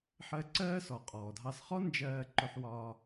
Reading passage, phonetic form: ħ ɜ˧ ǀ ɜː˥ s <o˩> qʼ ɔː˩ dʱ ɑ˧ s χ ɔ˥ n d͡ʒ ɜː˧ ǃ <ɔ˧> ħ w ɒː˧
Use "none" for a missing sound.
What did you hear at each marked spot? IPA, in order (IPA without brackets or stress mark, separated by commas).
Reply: ɔ˩, ʊ˧